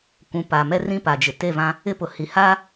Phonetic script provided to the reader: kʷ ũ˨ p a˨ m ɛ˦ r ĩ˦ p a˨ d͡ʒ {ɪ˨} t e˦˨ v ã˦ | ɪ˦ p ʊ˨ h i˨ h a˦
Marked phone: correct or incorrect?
correct